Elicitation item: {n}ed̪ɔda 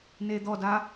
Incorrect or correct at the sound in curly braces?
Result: correct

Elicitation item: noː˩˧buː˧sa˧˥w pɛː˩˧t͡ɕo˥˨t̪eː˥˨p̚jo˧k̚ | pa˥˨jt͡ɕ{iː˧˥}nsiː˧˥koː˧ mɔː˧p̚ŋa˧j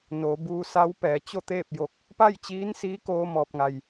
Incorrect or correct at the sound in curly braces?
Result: correct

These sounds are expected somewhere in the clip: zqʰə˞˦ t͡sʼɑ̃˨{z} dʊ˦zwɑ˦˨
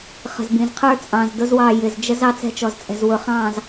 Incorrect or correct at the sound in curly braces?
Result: correct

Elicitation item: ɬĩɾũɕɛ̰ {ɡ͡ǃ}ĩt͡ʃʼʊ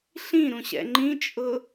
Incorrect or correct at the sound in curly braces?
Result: incorrect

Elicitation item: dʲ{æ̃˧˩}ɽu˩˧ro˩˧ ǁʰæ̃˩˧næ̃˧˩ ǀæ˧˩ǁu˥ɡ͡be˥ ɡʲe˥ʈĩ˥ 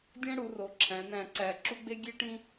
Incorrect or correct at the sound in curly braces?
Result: incorrect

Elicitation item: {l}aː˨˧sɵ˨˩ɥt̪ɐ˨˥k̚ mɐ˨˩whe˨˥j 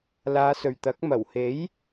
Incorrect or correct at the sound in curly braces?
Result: correct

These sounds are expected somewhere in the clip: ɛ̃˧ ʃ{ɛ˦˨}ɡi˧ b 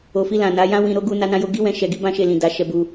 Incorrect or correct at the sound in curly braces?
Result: incorrect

